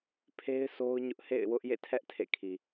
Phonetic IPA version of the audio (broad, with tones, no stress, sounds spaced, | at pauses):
pʰ e˦ ɪ̯ s o˦ ʊ̯ ɲ ʊ˦ ʔ h ḛ˦˨ ɪ̯ w ʊ˦ ʔ j ḛ˦˨ tʰ ɛ˦ ʔ tʰ ḛ˦˨ kʰ i˨